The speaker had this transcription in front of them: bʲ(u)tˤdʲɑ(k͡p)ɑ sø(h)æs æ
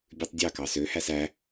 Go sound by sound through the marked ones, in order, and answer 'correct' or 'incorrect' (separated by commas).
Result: incorrect, incorrect, correct